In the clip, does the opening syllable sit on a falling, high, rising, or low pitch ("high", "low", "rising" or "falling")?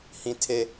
high